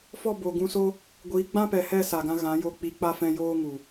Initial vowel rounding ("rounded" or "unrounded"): rounded